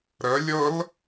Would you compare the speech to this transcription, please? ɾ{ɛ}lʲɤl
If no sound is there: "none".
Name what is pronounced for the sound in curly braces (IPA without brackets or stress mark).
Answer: ə